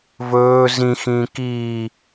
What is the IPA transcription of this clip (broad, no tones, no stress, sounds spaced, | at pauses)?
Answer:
v ɵː z ĩ x ĩː k iː